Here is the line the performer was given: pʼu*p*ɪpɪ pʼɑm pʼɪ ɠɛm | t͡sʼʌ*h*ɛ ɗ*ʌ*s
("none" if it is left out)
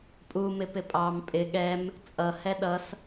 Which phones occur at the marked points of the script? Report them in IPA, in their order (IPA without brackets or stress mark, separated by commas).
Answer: m, h, ʌ